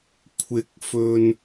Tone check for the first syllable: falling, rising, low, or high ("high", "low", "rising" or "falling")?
rising